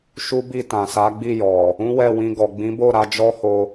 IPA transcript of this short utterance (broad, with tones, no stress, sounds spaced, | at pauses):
ʃ u˦ b i˦˨ t ã˨ s a˨˦ ɡ͡b i˦˨ j ɔ˨ | ũ˦ w ɛ˦˨ w ĩ˧ ɡ ɔ˨ ɡ͡b ĩ˨˦ b o˦˨ ɾ a˧ d͡ʒ ɔ˦ h o˧